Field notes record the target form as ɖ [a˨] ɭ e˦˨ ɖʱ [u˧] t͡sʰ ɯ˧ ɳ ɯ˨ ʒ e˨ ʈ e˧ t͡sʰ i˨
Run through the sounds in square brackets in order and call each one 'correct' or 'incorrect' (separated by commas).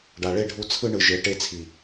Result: correct, correct